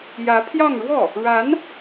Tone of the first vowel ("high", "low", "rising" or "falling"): rising